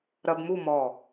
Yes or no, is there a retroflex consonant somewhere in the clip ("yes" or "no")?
no